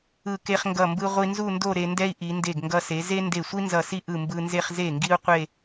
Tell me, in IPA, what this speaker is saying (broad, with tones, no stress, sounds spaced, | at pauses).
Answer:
ɯ˧˩ k e˧ χ ŋ ɡ ʌ˧˩ m b ɯ˧ ʁʷ i˧ n z u˥˧ n d o˥˧ ɾ e˧ n d ɛ˥ i̯ ʔ i˩˧ n d e˧˩ ɡ ŋ ɡ ʌ˧ s e˩˧ z e˥ n d e˧˩ sʷ i˥ n z ʌ˧˩ s i˥ ʔ ɯ˧˩ m b ɯ˧ n z e˥˧ χ z e˧˩ ŋ ɡ i˧ u̯ qʷ e˥˧